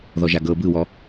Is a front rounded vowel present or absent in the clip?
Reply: absent